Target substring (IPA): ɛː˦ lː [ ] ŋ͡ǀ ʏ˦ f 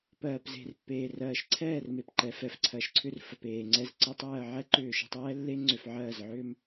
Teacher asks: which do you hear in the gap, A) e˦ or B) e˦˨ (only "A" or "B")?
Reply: A